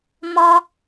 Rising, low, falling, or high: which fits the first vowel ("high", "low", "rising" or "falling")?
high